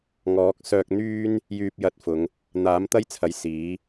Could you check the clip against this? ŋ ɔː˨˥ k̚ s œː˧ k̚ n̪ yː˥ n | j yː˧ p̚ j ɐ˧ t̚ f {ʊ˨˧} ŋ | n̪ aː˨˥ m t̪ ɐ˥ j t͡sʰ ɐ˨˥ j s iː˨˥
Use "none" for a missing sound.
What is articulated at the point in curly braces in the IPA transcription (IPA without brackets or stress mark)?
ʊ˨˧